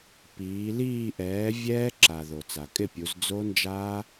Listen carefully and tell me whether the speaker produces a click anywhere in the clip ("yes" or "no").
yes